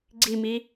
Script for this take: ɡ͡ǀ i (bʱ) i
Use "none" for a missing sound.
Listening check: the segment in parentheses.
m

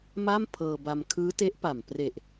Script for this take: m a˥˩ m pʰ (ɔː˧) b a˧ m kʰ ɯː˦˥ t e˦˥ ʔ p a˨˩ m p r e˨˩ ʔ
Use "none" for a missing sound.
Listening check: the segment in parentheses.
ɤː˧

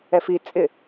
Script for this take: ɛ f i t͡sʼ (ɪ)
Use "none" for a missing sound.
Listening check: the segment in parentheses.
ɪ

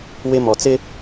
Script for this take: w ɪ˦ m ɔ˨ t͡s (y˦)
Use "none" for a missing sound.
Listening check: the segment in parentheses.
ɪ˦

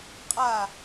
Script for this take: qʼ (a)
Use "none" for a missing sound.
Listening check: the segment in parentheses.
a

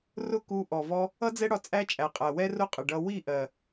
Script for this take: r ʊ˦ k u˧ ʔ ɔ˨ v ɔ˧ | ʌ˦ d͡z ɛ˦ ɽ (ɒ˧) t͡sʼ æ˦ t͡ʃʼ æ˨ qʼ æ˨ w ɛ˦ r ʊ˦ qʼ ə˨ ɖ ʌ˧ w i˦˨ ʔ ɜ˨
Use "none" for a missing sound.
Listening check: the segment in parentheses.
ɒ˧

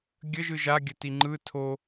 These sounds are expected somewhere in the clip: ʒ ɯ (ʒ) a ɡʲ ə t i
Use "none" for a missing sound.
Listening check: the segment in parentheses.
ʒ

